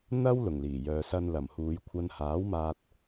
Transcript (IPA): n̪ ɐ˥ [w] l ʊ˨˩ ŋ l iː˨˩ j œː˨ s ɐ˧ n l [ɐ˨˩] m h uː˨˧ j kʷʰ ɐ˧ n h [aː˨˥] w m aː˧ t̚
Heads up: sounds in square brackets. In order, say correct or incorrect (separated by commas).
correct, correct, correct